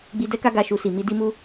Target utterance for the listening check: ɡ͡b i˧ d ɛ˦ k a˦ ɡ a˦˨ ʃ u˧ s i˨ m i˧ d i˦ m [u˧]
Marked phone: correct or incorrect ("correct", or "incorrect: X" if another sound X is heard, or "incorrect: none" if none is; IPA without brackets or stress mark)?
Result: incorrect: u˦